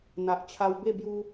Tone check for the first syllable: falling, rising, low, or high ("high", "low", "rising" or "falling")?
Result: low